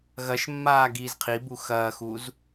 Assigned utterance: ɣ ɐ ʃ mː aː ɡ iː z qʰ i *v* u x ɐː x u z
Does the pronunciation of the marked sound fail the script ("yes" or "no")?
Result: yes